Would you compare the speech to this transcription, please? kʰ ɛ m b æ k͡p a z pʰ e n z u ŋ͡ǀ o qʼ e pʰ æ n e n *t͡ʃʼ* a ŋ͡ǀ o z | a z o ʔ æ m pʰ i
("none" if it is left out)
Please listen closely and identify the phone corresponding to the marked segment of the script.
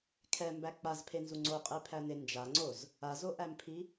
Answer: d͡ʒ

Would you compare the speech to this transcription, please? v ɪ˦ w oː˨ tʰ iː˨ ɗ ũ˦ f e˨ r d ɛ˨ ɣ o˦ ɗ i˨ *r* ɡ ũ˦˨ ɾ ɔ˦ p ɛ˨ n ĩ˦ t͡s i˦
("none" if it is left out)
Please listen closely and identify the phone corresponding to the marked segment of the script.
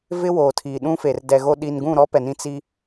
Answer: n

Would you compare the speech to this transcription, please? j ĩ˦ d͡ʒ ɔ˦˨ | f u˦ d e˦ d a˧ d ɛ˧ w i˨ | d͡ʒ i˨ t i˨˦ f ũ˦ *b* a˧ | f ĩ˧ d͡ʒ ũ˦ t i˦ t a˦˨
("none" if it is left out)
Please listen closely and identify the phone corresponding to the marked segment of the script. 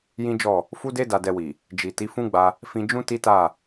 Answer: ɡ͡b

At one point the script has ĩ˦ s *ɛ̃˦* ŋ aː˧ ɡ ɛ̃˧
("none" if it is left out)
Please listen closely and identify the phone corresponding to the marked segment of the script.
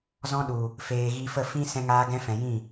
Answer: ɛ̃˧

